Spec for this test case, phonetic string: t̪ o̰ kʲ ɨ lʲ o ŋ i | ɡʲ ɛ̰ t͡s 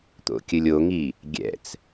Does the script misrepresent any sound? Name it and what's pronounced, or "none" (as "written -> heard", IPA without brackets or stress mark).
none